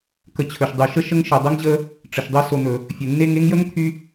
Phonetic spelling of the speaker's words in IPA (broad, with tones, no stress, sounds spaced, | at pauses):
k ə˨ t͡ɕʰ ɵ˩ ʃ dˤ y˩ ʃ ə˥ ʃ ə˦ ŋ ʃ ɘ˩ dˤ ɘ˥ ŋ ʑ ə˦ | ʈ͡ʂ ə˩ ʃ dˤ ɘ˥ s o˨ n̪ ɵ˩ | fʲ ɘ˩ nː e˦ ŋ e˥ ŋ j ə˥ ŋ t̪ʰ y˥